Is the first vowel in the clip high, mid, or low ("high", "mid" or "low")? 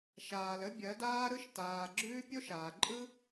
low